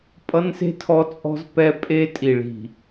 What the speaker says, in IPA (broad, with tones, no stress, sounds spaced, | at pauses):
pʼ ʌ˦ n s e̤˦ tʰ ɔ˦ t͡sʼ ɔ̤˦ z p ɛ˦ pʼ e˦ tʼ i˨ ɭ i̤˨